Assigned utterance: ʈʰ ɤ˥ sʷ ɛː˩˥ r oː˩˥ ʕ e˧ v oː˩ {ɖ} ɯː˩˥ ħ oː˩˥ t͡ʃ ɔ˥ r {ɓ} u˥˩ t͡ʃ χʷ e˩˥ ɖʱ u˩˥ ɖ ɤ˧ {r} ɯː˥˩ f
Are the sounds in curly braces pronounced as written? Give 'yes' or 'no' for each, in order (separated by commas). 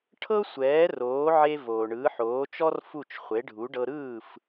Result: no, no, no